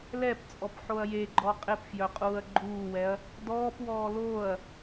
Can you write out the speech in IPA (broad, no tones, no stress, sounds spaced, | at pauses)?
l ɛ p t͡sʼ ɔ p ħ o ɐ̯ j e ɡ͡ǃ ɔ qʼ ɪ p f j œ qʼ uː ɐ̯ ɡ͡ǃ uː w ɛ ɐ̯ | d ɔː p w ɔː l oː ɐ̯